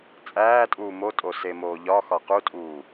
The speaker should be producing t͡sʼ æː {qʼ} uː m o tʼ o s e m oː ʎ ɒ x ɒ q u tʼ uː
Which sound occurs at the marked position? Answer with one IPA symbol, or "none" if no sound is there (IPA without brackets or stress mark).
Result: tʼ